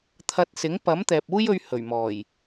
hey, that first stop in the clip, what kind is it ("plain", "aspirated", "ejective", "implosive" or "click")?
aspirated